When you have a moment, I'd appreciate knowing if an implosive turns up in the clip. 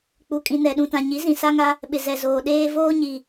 yes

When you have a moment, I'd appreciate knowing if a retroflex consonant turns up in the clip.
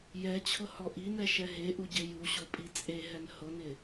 no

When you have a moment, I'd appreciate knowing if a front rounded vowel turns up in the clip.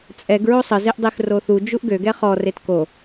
yes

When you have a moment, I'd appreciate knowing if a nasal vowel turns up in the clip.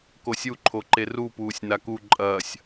no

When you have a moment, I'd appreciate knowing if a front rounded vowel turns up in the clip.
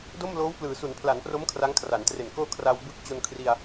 no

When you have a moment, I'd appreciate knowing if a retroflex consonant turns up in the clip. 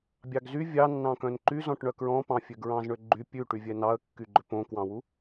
yes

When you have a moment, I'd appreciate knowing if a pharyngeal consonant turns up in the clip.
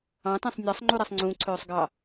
no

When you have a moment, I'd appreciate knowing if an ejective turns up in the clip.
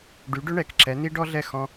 no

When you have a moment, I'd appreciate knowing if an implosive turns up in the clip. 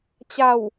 no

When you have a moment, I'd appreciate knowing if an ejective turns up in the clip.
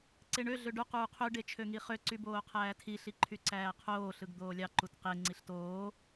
no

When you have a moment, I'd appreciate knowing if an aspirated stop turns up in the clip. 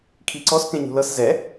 yes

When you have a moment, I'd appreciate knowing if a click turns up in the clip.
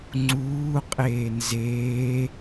yes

